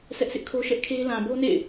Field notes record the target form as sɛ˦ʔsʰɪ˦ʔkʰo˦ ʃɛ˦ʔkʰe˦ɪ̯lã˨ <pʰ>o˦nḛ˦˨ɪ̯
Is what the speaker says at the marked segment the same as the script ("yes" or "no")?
no